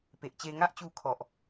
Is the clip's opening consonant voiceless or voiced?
voiceless